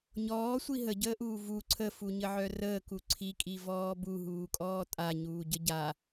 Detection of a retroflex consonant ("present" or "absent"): absent